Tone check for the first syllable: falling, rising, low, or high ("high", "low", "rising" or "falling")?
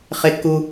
high